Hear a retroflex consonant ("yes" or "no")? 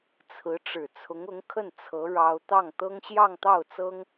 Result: yes